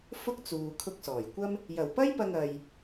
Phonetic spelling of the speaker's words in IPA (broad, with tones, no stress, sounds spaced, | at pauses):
f ʊ˥ k̚ t͡s uː˨ kʰ ʊ˧ k̚ s ɔː˨˩ j kʷ ɐ˥ m | j ɐ˨˩ w p ɐ˥ j p ɐ˧ ŋ ɐ˧ j